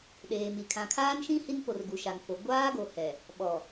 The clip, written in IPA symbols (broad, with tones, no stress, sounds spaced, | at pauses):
ɗ eː˨ m i˨ kʰ ã˨ kʰ aː˦ n ʃ ĩ˦ h i˦ n p o˨ r ɡ u˨ ʃ a˨ ŋ f o˨ ɡʷ aː˦ ɡ o˨ h ɛ˨ | ɓ ɔ˨